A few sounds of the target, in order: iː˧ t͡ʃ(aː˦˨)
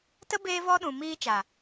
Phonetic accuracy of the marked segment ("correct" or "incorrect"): incorrect